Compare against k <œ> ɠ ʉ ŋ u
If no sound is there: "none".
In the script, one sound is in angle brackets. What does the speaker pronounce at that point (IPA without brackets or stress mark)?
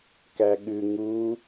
æ